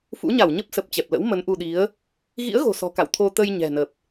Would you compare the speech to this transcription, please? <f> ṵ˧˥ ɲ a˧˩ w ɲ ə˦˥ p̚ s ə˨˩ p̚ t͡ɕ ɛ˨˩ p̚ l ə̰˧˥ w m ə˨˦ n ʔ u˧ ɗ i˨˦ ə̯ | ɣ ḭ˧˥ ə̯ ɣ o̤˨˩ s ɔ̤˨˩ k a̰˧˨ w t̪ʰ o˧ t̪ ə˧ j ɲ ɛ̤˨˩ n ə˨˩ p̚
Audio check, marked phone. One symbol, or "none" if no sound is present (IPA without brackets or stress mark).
f